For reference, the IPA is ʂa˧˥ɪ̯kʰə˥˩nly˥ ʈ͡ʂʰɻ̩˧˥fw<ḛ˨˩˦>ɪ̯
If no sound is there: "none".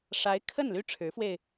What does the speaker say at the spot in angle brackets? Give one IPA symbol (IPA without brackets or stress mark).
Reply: e˧